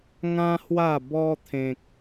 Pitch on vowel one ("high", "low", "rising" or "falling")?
high